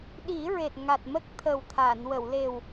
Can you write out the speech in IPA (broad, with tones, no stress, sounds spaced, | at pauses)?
ɗ i˨˩˦ ɹ e˨˩ t̚ ŋ a˨˩ t̚ m ə˦˥ k̚ t̪ʰ ə˨˩ w t̪ʰ a˨˩˨ n w ə˨˩˨ w l e˨˩ w